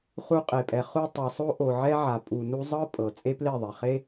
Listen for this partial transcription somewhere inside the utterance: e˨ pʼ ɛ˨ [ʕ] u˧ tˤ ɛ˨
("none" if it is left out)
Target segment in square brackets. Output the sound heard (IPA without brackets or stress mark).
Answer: χ